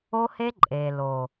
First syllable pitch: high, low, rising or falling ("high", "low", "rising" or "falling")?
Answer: high